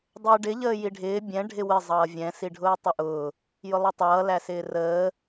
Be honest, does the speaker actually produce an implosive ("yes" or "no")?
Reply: no